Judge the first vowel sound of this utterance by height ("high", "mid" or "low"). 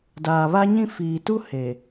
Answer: low